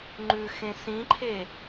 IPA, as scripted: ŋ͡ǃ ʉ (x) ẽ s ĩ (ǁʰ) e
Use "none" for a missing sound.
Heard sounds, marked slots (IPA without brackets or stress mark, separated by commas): x, ǃʰ